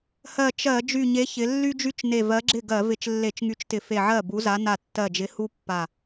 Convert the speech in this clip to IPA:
h ɜ˧˩ t͡ʃ ɜ˧˩˧ d͡ʒ y˧˩ ɲ e˨˥ ç ɪ˩˧ lː y˥ d͡ʒ y˥ t͡ʃ n e˧˩ v ɜ˨˥ ɡ͡ǁ ɪ˥˩ ɡ ɜ˧˩˧ v ɪ˧˩˧ t͡ʃ lː e˧˩˧ t͡ʃ ŋ y˨˥ t͡ʃ t ɪ˧˩˧ f e˧˩ ʕ ɜ˥˩ b u˨˥ z a˨˥ n a˧˩ tː ɜ˧˩ d͡ʒ ɪ˨˥ h u˥ pː a˧˩

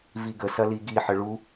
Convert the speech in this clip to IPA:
v i ɡ ə s ɐ l i ɡ i ħ ə ɭ u

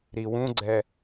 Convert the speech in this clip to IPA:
ɾ i w ũ ɡ͡ǀ ɛ

